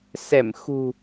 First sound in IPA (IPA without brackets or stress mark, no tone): s